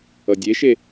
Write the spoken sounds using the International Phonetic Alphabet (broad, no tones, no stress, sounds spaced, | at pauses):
ʌ dʲ e ʃ e